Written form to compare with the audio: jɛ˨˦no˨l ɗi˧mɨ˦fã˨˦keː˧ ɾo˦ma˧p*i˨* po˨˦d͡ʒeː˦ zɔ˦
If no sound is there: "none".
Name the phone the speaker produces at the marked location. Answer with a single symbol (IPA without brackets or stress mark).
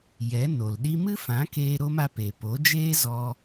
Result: e˨